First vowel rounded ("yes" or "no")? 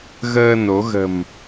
no